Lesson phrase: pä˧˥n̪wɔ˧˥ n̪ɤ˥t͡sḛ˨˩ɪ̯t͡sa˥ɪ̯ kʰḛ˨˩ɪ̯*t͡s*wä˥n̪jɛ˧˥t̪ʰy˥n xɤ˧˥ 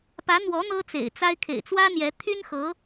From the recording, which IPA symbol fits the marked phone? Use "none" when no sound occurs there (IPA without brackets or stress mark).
t͡s